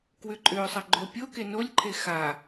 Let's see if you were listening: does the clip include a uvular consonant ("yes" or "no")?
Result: no